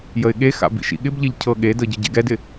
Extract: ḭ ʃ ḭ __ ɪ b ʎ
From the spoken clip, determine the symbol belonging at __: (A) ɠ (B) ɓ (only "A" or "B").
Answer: A